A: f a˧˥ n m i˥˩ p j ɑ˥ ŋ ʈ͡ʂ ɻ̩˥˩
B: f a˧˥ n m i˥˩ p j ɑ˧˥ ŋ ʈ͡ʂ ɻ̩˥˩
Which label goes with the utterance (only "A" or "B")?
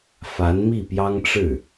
A